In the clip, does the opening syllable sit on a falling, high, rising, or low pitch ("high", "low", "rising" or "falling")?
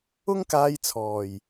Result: high